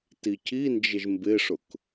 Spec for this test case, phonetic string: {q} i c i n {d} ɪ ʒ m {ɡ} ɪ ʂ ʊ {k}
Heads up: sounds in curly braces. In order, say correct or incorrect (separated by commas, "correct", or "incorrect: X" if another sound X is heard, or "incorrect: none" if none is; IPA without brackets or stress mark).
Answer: incorrect: t, incorrect: d͡ʒ, incorrect: b, correct